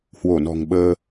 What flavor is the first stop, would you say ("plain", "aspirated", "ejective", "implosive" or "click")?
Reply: implosive